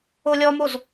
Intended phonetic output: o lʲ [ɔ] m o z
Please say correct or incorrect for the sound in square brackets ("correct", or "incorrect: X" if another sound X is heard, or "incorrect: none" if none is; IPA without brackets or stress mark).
correct